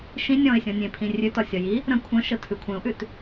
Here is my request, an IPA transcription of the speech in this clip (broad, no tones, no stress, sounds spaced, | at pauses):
ʃ ĩ nʲ ɔ̃ ɪ̯ sʲ ɔ̃ nʲ ẽ pʰ ĩ rʲ ʉ t ɒ sʲ ɒ j i | ɾ ə̃ kʷʰ ə̃ ʃ ə tʰ ʉ kʷʰ ẽ ʊ̯ ʔ ʉ t